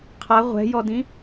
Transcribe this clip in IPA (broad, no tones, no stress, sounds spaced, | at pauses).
qʰ a ʁʷ ɛ̤ j ɔ d ĩ